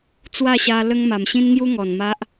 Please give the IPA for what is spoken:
t͡swa˥˧ɕa˧ lə˦ŋma˨˩m ɕĩ˦nŋju˦ ŋɔ˨˩n ma˦ʔ

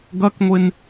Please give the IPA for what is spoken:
ɡɐkŋʷen

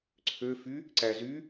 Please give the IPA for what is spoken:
ǀʰøfy | ǀæzy

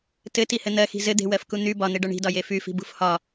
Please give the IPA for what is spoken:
tɘtihɘ n̪ɜxi̤ zɘd̪e̤wɜfku n̪y bɒn̪eɖɒ ɳi̤dɒje fyfi̤bṳf hɒ

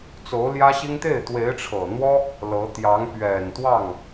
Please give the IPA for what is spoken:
t͡so˧˥ʊ̯ljä˥ɕi˥ŋ t̪e˥˩ɪ̯t̪we˧˥ɪ̯ʈ͡ʂʰɤ˨˩n̪wɔ˥ | lɤ˧˥ t̪jɑ˧˥ŋpɥɛ˨˩n t̪wɑ˥˩ŋ

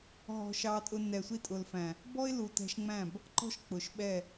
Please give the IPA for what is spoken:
ɦɔ̤˧ʃɑ˧tʼʊ˧ nɛ˨sʷi˧tʼʊ˨lfæ̃˨ | bɔ˦ɪ̯lu˨tɛ̤˧ʃŋ͡mæ̃˦˨b | ǃɔ̤˦ʃk͡pʊ˨ʃɓɛ˦˨

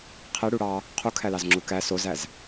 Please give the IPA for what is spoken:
qʰe ɽuɽɑ | qʰukʰælɑz ŋ͡ǁukæ sozæz

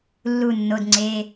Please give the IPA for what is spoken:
lːu˨˩ nːo˧˥˧dŋ͡ǀe˧˥˧

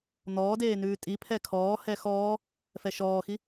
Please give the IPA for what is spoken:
n̪ɔːdeː nʉːtʼipʰɛ kʰɔːhɛ xɔː | fɛʃɔːxi

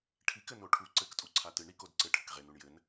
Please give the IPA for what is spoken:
ʈʰikɘ noʈʰu ǀɘktʼu ǀʰatɨɳ ɾikod ǀɘ ʈʰɘkʁenuɳ jɘn

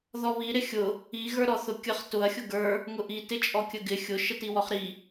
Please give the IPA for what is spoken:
ðɔβi ɾɪxʲʊ | i ɣə˞ɾɔθʊkʲəχ tʊɐ̯ xʲʊɡə˞ | ŋʊʔi tɪt͡ʃʼɔkʲəɡɪ xʲʊ ʃətiwɔχɾi

